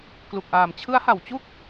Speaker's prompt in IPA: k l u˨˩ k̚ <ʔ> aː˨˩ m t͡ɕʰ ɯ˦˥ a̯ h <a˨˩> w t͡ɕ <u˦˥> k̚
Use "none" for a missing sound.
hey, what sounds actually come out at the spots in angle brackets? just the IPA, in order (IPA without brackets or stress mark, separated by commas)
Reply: ʔ, a˨˩, u˥˩